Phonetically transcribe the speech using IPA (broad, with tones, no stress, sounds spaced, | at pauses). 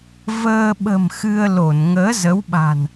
v əː˧ ɓ ə̤˨˩ m x ɨ˧ ə̯ l o˧˩ n ŋ əː˨˦ z ə˨˦ w ɓ a̤˨˩ n